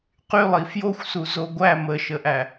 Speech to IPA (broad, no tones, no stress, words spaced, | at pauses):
qylˠi fjoxʷsu zoɡʷæ məʃəʔæ